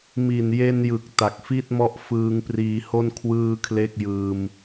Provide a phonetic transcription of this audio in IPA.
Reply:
mi˨˩nje˧njɯ˨˩k̚ ta˨˩k̚fi˥˩t̚mɔ˦˥ʔ fɯː˧ŋpriː˧ho˥˩n kʰwɯː˥˩kʰle˥˩k̚jɯː˧m

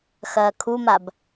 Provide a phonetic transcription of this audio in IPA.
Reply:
xɐːkʰumab

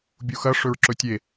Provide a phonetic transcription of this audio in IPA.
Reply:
bʲuxɐ ʂɵɹǁɵtʲe

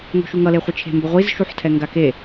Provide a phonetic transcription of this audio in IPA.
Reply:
ŋo̤ʃuŋʌ leχʷɯt͡ʃʰe̤mbʌ ʁʷizʃuħtʰɛ ŋɡake

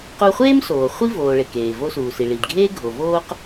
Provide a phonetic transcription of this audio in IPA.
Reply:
qu˧χʷeː˥msoː˩ χʷi˥voː˩ ɭe˩keː˩ vo˧suː˩ si˩ɭi˩dɡʱeː˥ ɡʱo˩voː˥q

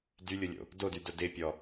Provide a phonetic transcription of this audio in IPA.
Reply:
dylʲʊlʲo̰ | dodydʊ dɪpʲɔ

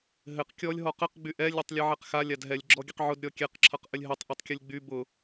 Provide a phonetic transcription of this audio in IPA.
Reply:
ɦɘq kʲɔlʲ ɦɔqɘq ɡ͡byʔɛ lʲɘtˤlʲʌʕɛqxa lʲadɦɛlʲ ɡ͡ǁɔɡʲɘqʕʊd ɾʲɔkʲɛq ǁʰʌqʔɘlʲɦɘtˤ ʔɛtˤkʲʊlʲɡ͡by bʊ

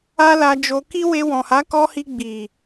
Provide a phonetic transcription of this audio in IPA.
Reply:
a˦la˧d͡ʒo˧ ki˦we˧wɔ̃˨ ha˨˦kɔ˧hi˧ ɡ͡bi˨

